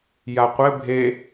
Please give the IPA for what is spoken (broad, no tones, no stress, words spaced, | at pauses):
jaqʷɘ bʱe